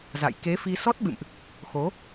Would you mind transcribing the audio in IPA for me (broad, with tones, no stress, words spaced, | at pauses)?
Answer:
za̰˧˨j ke˨˦fi˧sɔ˦˥t̚ɓɨ̰˧˨mʔ | xo˨˦